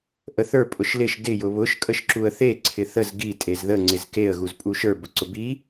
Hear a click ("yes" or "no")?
yes